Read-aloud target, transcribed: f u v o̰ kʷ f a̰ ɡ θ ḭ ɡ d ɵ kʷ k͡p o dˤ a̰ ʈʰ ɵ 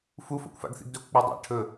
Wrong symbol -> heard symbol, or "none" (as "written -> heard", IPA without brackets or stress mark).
v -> f